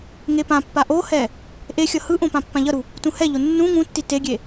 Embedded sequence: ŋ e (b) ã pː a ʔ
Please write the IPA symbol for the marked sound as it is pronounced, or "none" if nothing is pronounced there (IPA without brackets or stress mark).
p